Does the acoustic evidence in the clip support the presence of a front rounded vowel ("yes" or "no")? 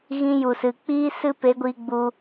no